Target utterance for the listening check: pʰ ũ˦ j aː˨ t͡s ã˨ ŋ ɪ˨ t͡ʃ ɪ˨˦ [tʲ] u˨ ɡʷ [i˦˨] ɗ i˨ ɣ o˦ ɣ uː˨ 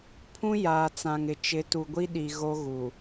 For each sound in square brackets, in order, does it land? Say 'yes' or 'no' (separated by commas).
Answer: no, no